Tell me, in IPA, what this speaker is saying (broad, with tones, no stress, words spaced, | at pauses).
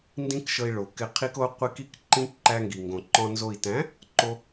ndĩ˦kʃɤ˧i̯ɭo˨ kɪ˧qʰi˦ko˦ qʷi˧k i˦kǃĩ˦ ǃæ˧ŋɡi˨ŋɡõ˨ǃɔ̃˧ nzo˨i̯tæ̃˨˦ | ǃo˧